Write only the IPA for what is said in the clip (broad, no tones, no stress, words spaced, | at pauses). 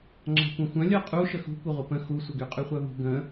ŋ͡ǁa̤kʷœ̃xʷœ̃ lʲœqʼu ʃəxṳ kʷəʁʷəpə̃ xusʷəɡy qʼyχʷœvṳ ɡə̃